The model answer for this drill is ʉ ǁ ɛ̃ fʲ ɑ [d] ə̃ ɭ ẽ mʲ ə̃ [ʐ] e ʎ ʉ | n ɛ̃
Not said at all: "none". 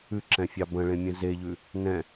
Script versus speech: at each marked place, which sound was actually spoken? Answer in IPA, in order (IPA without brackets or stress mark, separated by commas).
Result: b, z